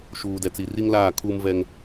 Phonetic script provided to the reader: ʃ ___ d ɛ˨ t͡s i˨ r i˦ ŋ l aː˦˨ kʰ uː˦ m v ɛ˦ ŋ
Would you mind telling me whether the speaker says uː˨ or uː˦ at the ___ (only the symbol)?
uː˨